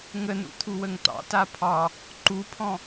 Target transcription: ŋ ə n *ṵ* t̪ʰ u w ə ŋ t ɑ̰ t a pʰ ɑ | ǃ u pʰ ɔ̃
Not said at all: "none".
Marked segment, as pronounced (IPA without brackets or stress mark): ṵ